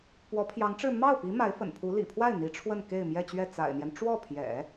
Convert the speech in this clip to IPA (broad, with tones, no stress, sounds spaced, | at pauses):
p w ɔ˧˥ pʰ j ɑ˧˥ ŋ ʈ͡ʂ ɻ̩˥˧ m ɑ˥˩ ʊ̯ p i˧˥ m a˧˥ ɪ̯ f ə̰˨˩ n pʰ u˧˥ l ḭ˨˩ pʰ w a˥˩ ɪ̯ n̪ i˧˥ ʈ͡ʂʰ w ə˥˧ n k e˥˧ ɪ̯ m j ɛ˥˧ t͡ɕ ɥ ɛ˥˩ t͡s a̰˨˩ ɪ̯ n̪ j ɛ˦ n ʈ͡ʂ w ɔ˥˩ pʰ j ɛ̰˨˩˦